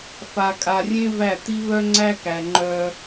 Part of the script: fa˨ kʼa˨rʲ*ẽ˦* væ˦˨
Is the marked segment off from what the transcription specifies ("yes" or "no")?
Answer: no